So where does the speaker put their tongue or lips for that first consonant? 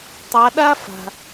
tongue tip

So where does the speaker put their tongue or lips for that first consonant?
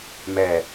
lips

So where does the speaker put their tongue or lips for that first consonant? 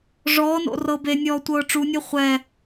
retroflex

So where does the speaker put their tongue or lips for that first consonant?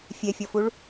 lips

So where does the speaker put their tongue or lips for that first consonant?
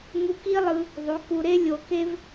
velum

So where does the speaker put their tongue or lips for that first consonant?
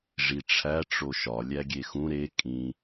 retroflex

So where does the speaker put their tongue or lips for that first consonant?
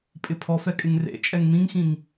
lips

